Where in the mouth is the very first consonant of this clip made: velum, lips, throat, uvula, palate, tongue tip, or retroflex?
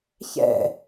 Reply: palate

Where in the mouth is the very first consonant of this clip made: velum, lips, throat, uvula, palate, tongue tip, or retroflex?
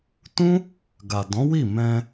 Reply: tongue tip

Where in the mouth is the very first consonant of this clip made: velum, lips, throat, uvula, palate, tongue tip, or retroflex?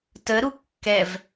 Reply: tongue tip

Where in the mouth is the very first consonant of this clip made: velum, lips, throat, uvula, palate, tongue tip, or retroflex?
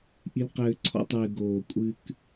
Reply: throat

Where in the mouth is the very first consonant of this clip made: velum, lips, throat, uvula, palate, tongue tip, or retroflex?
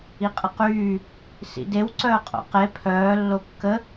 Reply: uvula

